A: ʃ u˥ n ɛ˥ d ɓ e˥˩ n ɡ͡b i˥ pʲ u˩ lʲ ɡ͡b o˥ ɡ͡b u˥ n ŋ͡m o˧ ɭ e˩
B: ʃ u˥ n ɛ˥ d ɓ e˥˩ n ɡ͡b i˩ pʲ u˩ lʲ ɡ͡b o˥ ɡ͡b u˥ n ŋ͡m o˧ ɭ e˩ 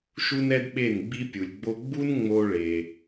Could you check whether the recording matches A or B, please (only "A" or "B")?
A